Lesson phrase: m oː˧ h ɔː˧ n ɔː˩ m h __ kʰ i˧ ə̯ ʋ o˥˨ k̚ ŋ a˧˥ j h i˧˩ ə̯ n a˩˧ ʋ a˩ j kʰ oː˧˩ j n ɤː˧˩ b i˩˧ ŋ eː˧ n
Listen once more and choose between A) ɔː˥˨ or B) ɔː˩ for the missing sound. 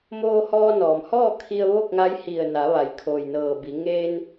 A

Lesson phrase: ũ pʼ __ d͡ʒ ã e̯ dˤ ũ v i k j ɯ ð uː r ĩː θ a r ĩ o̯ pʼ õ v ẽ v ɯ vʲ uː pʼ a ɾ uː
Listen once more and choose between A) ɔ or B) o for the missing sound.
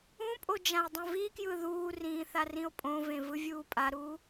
B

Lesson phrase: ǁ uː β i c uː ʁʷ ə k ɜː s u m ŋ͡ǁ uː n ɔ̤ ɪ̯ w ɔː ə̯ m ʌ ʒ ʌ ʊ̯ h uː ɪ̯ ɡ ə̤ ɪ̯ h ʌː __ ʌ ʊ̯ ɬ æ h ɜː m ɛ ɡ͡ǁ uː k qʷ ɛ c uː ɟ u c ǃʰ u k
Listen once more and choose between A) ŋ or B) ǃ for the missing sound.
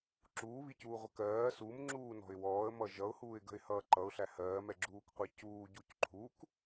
B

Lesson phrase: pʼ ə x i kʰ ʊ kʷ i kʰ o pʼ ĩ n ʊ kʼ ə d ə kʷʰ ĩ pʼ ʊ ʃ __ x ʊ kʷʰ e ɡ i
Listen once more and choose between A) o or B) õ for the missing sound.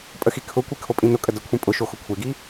A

